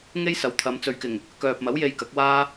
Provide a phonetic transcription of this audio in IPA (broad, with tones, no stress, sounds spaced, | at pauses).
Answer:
ŋ e˥ j s ɐ˨˥ w t̪ʰ ɐ˨˧ m t͡s ɵ˨ ɥ k ɪ˨˩ ŋ | k œː˨ p̚ m ɐ˨˥ w j e˧ j k ɐ˨˥ k̚ w aː˥